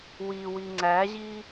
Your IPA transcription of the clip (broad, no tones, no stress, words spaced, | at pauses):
wiwi ŋ͡ǀæʑi